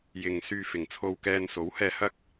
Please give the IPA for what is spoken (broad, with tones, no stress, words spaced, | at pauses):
jɪ˨ŋ syː˧fɪ˨ŋt͡sʰo˧wkɛː˧n so˨˥whɛː˧ hɐ˥k̚